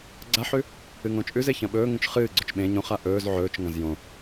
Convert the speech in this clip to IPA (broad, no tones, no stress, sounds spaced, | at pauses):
ɡ͡ǀ a ħ ʉ | ɨ ŋ õ t͡ʃʼ ʉ z e ç ɐ̃ ɓ ɵː ŋ ũ t͡ʃ χ ɨː ɡ͡ǀ ɵ t͡ʃ ɓ ẽ ɲ õ χ a ʔ ɵː z ʕ ɵː t͡ʃ ŋ ɐ̃ z j õ